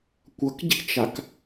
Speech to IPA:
kʷʌkɟi̤t͡ʃak

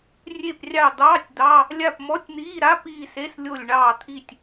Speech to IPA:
rʲe˦˨prʲɑ˦˨d̪ɑː˧˥˧tʲ d̪ɑ˧˥˧ | lʲa˦˨pmɔ˧˥˧tʲn̪iː˧˥˧ɾa˧˥˧ piː˦˨se˧˥˧s lʲo˦˨lʲɳɑː˦˨t̪ʰi˦˨tʲ

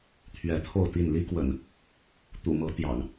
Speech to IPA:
t̪ʰɥɛ˨˦t̪ʰo˥˨ʊ̯t̪i˥˨n li˦kwə̰˨˩n | t̪ṵ˨˩mɤ˨˦ t̪jɑ̰˨˩ŋ

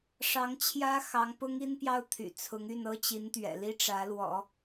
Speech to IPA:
ʂɑ˧˥ŋt͡ɕʰjä˥ xɑ˧˥ŋpʊ˥ŋi˥npjɑ˥˩ʊ̯ t̪ʰy̰˨˩t͡sʰʊ˧˥ŋ y˥˩nɤ˥t͡ɕi˧˥nt̪ɥɛ̰˨˩ li˥ʈ͡ʂä˧˥lwɔ̰˨˩˦

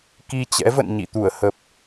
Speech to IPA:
ki˧t͡ɕɛ̰˧˥və̰˧˨n ɲḭ˧˨t̪u˧˩ə̯hə˨˩p̚

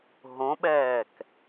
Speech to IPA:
ɦõɓɛːk

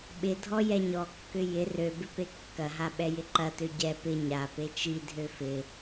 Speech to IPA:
ɓɪdʱɔ jɛɲɔkːʏ jɪ røbɪ pekːɐɦa ɓɛjɪǃɐtø ɟɛ pɪ ɲa pet͡ʃidʱø fɪ

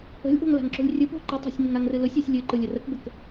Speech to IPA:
ə̤lʲʔo̤ŋ la̤ŋǁo̤lʲrʲɯp o̤ ǃɨtˤa̤sʲ ŋəŋaŋrɨlʊsʲ ʊsʲ lʲɨ ǃɯlʲərəkbək

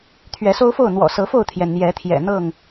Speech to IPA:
t̪ʰɥɛ˨˦so˦ʊ̯fo˥˨ʊ̯ n̪wɔ̰˨˩sɤ˨˦fo˥˨ʊ̯t̪ʰjɛ˩n n̪jɛ˨˦ t̪ʰjɛ̰˨˩n̪ɤ˥˨ŋ

